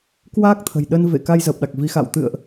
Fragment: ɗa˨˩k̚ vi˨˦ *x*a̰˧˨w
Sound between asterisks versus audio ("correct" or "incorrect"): correct